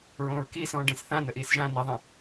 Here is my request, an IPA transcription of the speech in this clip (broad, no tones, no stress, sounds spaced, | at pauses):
ɹ õː ɹ k iː s ɔ̃ː ɖ ẽ s θ ã n ə ʔ iː s ʒ ã n i ðˤ ĩ